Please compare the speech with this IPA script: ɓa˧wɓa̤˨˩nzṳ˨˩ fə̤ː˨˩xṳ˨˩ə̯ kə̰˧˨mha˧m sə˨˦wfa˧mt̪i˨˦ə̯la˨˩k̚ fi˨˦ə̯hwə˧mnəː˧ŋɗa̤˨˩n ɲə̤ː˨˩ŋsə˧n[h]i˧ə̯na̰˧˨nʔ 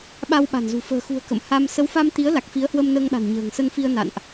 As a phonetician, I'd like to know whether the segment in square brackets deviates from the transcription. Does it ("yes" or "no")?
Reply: yes